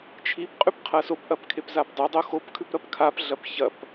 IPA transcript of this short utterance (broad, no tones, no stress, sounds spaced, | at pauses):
t͡ʃʰ i p qʼ ʉ p qʰ ɐ s o p ʔ ɐ p kʰ e p z a p dˤ ʉ dˤ o x o p kʰ ʉ p ɾ ɐ p kʰ a p ɮ ɐ p ç ɐ p